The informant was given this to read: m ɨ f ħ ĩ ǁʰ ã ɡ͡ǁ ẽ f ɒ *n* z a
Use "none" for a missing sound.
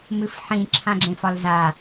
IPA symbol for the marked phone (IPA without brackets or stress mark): l